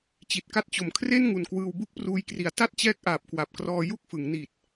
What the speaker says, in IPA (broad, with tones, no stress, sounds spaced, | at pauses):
t͡ɕ i˨˩ t̚ k a˦˥ t̚ t͡ɕ o˨˩ m kʰ r e˥˩ n ŋ u˨˩ n k w ɯː˧ w b u˥˩ k̚ p r uː˧ j k r i˩˦ a̯ t a˥˩ t̚ t͡ɕ ɛː˦˥ k̚ ʔ aː˨˩ p̚ k w a˨˩ p̚ k r ɔː˧ j u˥˩ k̚ f ɯ˩˦ ŋ n i˨˩ t̚